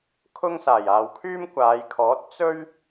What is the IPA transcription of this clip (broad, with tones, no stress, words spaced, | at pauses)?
kʰʊ˥ŋsaː˨˩j aː˨wkʰyː˥mkʷaː˨˧jkʰɔː˨˥t̚ t͡sɵ˥ɥ